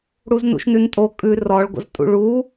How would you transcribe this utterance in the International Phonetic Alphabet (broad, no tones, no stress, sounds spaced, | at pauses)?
ɽ u z n ṵ ʃ n ʉ n tʼ o kʼ ʉ r ɔ ɭ ɡʷ ə̰ z tʼ ṵ ɭ u